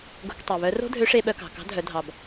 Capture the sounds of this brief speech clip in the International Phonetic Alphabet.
ɡo̤˧ktˤø˩βœ˧˥ ro̤˥dʱø˧˥ʂe˧ɓœ˧ kɑ̤˩kɑ̤˧˥dʱœ˩˧ dʱɑ˩b

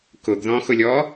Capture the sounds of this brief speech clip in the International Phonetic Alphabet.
kʊɡðɔ̃xʊlʲɔ

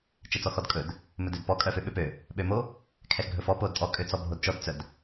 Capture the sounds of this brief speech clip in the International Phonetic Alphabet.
t͡ʃɛt͡sɔxɔdkʼɵd | mɵdødpɔ kʼœføɓøpø | ɓømo | kʰɛxɡʱɵfɔ podtʼɔ kʼøt͡sɔbʱodt͡ʃɔd t͡sœd

